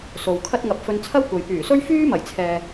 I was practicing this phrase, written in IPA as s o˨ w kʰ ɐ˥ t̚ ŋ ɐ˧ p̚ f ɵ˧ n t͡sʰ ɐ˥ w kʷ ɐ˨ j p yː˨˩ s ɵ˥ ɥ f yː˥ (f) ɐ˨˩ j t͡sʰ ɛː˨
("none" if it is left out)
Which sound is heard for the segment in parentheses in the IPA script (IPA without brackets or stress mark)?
m